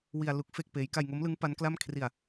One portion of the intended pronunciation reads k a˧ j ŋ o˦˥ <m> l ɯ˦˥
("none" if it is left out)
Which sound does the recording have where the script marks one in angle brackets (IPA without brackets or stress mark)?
m